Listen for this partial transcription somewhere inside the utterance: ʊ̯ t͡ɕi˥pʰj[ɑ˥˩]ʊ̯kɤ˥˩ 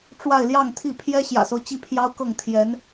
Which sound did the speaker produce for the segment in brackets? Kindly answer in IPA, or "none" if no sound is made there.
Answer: ɑ˥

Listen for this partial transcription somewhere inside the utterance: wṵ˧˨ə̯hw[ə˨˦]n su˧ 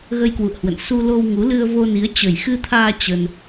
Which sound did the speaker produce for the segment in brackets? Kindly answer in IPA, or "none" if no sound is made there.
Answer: ə̰˧˨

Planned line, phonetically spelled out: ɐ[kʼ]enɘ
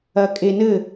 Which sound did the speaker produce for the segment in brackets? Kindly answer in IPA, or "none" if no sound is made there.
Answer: kʼ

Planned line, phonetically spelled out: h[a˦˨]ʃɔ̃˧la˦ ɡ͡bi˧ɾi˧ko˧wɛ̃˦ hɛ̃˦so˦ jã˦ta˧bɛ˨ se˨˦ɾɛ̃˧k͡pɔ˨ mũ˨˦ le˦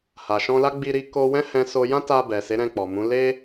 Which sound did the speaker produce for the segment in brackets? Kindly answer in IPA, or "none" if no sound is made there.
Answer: a˨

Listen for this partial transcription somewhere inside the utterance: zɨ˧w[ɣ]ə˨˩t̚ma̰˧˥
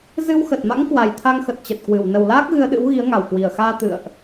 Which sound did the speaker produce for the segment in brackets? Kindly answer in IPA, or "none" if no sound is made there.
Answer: x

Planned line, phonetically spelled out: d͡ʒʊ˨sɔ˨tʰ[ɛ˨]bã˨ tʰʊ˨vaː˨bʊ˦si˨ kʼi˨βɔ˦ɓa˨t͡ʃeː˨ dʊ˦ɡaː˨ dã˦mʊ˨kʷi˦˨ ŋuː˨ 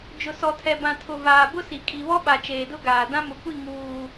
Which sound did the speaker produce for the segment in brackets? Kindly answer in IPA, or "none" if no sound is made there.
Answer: ɛ˨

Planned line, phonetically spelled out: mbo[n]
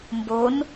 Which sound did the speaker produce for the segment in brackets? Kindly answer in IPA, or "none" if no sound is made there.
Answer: n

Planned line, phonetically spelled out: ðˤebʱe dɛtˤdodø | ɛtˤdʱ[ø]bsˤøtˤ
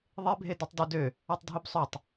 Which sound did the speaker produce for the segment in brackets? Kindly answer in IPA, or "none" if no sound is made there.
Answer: ø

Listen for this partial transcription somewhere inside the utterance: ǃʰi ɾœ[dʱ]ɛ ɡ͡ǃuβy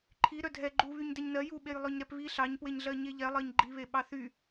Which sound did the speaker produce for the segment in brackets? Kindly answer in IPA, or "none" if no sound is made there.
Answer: dʱ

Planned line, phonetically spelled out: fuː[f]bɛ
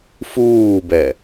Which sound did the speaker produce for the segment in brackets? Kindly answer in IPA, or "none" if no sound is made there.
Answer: none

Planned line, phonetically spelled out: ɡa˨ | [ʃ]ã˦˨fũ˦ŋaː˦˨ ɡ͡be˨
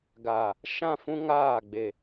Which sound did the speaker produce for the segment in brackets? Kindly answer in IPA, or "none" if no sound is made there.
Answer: ʃ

